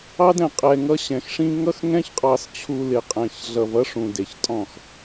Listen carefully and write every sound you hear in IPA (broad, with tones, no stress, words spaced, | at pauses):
ɑ˦dɛ̃˨ qʼɛ˨ŋʌ˦ ɕɛ̃˨xʂĩ˦ ŋʌ˦xŋɛ̃˦çqʼɑ˨st͡ɕʰu˨ lɪ˨qʼɛ̃˨ç ɮʌ˨vʌ˦ ʂũ˨ de˨çtʼɔ̃˦˨x